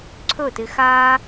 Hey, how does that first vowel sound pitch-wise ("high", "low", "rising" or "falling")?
falling